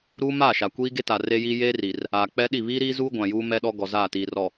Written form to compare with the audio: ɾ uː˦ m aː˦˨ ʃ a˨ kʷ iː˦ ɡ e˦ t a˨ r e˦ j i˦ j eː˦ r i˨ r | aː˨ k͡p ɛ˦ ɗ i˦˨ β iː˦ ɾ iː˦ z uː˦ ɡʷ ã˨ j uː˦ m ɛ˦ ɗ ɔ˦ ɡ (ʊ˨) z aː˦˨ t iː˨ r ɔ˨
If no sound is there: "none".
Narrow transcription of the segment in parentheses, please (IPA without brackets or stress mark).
ɔ˨